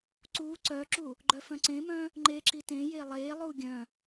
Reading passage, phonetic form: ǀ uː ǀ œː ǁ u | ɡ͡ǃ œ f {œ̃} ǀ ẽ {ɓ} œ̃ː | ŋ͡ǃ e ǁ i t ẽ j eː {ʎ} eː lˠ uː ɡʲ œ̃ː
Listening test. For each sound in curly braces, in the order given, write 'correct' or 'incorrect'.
correct, incorrect, incorrect

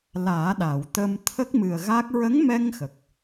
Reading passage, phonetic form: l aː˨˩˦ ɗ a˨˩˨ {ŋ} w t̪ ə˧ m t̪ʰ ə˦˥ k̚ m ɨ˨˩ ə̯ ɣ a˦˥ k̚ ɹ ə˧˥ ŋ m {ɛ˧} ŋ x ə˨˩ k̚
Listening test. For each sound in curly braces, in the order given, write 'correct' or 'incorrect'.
incorrect, correct

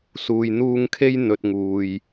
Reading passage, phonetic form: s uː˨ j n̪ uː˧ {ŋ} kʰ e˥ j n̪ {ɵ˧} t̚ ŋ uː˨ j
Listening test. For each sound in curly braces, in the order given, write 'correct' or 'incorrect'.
correct, correct

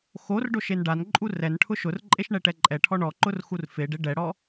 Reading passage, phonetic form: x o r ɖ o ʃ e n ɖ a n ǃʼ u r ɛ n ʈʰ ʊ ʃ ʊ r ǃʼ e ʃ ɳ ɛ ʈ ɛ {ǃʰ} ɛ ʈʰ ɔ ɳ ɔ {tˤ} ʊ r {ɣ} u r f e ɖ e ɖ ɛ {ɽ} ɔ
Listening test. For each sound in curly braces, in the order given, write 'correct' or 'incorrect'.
incorrect, incorrect, incorrect, correct

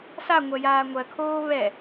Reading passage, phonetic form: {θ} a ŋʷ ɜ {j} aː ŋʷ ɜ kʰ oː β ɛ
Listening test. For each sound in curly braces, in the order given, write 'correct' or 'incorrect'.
incorrect, correct

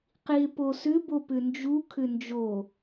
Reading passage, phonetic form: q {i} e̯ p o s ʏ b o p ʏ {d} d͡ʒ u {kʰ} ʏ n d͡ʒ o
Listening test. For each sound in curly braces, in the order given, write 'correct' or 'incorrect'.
correct, incorrect, correct

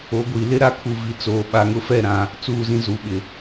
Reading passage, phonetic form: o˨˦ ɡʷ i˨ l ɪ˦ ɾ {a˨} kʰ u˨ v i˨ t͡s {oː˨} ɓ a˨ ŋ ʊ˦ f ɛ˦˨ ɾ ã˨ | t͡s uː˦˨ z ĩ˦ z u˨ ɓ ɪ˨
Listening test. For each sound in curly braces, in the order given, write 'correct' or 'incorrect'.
incorrect, correct

